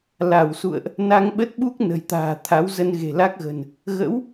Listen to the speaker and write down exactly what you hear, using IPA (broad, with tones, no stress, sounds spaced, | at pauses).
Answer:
l a˧˩ w s ṵ˧˨ ə̯ ʔ | n a˧ ŋ ɓ ə˦˥ t̚ ɓ u˦˥ k̚ n ə̤˨˩ j t̪ a̤ː˨˩ t̪ʰ a˨˦ w z ə˧ n ɣ e̤˨˩ l a˦˥ k̚ ɣ ə̤˨˩ n | ɣ ə̰˧˥ w